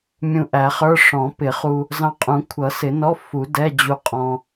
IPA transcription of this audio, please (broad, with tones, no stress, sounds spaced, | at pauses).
mʲ ũ˧ ʔ æ˨˩˦ χ ə˞˧˥˧ ʂ ɔ̃˨˩˦ p ɪ˨˩˦ χ u˧ | z ɑ̃˧ qʼ ũ˨˩˦ kʷʰ ʌ˨˩˦ s ɪ˨˩˦ n ɔ˧˥˧ f u˨˩˦ d ɛ˧˥˧ d͡ʑ u˧ qʼ ɔ̃˧